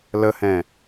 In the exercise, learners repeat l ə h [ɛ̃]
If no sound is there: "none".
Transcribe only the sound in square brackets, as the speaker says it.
ɛ̃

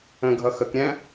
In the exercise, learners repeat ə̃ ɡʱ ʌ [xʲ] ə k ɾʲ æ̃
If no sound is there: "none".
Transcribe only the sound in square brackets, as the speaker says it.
x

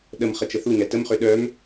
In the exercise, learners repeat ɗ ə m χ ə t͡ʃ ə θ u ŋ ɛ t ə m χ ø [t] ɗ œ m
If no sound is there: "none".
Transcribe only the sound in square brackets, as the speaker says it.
none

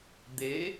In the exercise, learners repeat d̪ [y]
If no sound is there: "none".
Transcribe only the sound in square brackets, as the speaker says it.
e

